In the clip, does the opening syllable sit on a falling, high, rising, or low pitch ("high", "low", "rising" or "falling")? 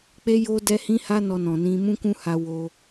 high